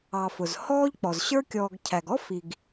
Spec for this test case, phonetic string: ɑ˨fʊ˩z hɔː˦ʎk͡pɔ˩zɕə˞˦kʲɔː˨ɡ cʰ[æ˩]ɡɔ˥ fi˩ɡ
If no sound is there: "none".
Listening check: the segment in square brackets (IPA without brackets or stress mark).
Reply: æ˩